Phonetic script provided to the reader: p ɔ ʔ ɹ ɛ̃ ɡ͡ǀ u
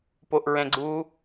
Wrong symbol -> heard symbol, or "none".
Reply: ɔ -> o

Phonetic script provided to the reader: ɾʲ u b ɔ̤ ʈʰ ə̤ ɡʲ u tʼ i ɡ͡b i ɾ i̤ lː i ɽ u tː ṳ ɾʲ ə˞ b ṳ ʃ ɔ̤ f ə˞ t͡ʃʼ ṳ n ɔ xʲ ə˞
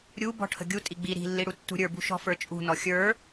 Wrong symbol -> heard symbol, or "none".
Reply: none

